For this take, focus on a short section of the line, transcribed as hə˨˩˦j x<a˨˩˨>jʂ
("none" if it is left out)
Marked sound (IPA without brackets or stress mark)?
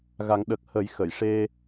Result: ə˨˩˨